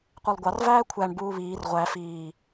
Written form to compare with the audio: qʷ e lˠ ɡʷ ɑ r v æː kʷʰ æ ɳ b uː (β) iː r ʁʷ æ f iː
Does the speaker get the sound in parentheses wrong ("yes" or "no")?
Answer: no